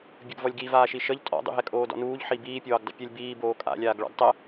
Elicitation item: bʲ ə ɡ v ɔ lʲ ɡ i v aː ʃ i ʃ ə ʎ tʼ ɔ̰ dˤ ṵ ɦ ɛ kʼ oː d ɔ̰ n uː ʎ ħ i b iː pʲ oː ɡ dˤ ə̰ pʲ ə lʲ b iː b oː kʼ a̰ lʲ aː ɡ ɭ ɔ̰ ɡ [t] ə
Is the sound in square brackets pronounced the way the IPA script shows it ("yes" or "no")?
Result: no